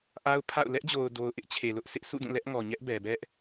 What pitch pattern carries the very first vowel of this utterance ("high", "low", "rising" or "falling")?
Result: high